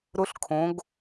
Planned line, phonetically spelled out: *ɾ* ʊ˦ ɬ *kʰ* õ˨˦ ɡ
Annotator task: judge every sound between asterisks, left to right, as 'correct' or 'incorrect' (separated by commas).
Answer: correct, correct